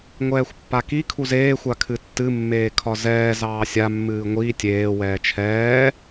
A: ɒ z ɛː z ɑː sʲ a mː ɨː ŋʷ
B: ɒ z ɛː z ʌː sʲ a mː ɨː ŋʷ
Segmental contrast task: A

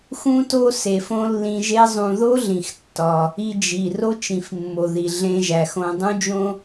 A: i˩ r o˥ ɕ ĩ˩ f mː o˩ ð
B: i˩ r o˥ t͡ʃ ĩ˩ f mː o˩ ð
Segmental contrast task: B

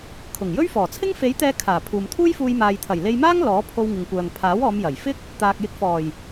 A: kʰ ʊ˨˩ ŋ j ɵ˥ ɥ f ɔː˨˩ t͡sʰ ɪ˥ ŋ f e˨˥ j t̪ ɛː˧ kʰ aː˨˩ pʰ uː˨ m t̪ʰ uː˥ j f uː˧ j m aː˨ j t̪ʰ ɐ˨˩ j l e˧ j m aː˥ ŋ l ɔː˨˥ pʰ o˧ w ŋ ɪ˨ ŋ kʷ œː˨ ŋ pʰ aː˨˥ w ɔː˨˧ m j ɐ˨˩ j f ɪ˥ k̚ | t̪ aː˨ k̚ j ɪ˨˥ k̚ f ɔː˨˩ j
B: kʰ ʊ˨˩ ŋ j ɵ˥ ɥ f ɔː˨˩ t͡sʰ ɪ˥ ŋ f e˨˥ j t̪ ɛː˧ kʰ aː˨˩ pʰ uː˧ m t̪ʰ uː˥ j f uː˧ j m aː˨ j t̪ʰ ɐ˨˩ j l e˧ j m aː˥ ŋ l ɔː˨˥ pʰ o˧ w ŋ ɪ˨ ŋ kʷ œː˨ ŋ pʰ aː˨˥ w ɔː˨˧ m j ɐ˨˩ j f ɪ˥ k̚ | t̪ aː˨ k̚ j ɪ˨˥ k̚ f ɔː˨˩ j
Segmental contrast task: A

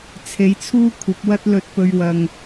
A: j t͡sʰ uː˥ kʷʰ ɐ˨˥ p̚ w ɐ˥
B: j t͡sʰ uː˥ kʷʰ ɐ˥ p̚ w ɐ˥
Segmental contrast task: A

